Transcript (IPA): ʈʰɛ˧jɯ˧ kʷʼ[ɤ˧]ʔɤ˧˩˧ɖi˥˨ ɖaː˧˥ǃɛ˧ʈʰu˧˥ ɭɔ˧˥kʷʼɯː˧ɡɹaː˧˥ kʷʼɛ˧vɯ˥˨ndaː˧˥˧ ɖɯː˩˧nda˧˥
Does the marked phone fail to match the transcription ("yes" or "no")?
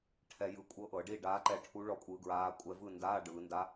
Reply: yes